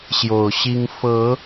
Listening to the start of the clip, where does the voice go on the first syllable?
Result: low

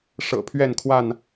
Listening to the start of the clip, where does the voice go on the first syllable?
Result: low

